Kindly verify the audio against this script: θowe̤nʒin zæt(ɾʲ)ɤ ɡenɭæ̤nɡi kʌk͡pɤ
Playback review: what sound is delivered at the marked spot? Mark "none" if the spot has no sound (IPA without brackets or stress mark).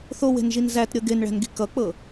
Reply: ɾʲ